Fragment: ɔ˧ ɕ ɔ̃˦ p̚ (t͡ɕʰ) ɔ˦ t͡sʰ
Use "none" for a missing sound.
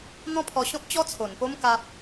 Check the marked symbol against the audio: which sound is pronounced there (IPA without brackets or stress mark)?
t͡ɕ